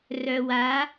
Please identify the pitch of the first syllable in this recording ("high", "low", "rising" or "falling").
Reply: low